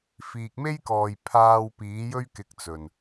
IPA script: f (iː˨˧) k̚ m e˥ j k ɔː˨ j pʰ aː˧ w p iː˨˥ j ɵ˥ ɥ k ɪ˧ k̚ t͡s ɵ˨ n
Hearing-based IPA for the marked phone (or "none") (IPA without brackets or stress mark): iː˨